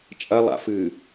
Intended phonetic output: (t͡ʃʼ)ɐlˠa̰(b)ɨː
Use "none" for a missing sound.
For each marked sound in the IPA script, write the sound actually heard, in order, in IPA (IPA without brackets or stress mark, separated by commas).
t͡ʃʼ, f